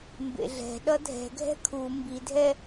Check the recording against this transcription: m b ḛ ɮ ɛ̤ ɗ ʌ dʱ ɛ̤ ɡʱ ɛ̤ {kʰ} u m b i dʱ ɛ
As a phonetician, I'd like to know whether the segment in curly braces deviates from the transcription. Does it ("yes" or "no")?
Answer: no